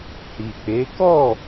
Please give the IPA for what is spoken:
hi˨k͡pe˨˦ kɔ˦˨

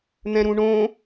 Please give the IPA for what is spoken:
n̪ɛ̃ɾũɳõ

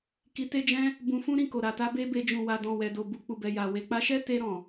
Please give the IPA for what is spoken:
ki˧te˦d͡ʒɛ̃˦ | bũ˧fũ˦ ɾĩ˦˨ko˨ɾa˨ta˧ be˦be˧ d͡ʒũ˨wa˨ dɔ̃˨ wɛ˨do˨ bu˨k͡pu˨bɛ˨ ja˨ we˨k͡pa˧ʃɛ˦ te˧ɾɔ̃˨

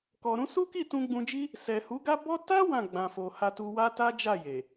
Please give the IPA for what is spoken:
kɔ˨ɾũ˧su˦ki˦˨ tũ˧ɡ͡bũ˧d͡ʒi˦ | sɛ˨hu˨˦ɡa˦ bɔ˦ ta˦ wã˦˨ɡ͡bã˨fo˨ha˧ tu˧wa˦ ta˦d͡ʒa˦˨ je˨

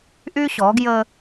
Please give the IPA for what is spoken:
ʔy˦ɕɔ˨˦ɡjə˦

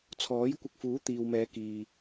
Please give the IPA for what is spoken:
t͡sʰɔː˨˥jkʷɪ˧k̚fuː˨˥ t̪iː˨wmɛː˨˧kiː˨

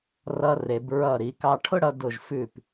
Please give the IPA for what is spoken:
rʌ˧re˩˧b ɹʌ˧˩ɾi˩˧ kɑ˧ʈʰʊ˥ɽʌ˧ dʊ˧˩ʒfʉ˧˩p

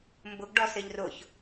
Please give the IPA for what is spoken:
mbʊɡɖɔ sɪʎrʊç

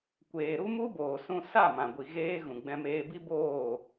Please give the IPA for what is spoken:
kʷeː˨ɾu˦mu˦ boː˨sũ˧ sa˦˨ mã˨ɡʷi˨ ɣeː˧ ɣũ˨ ɡ͡bɛ̃˧meː˧bi˦ boː˦˨

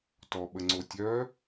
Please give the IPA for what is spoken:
tɔɓəŋ͡ǀo tʲœ

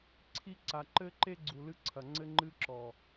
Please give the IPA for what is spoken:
ǀʰi˦ǀa˨ ǃɘ˦ǃe˦ ɡ͡ǀu˨lɨ˦ ǀʰɐ˨ ŋ͡ǀɘ˦ŋ͡ǃɨ˦ǁɔ˨

